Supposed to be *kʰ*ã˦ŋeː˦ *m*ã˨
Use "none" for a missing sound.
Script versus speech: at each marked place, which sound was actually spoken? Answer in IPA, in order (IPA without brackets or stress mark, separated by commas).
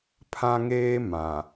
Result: pʰ, m